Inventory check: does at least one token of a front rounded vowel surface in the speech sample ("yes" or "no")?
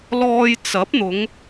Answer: no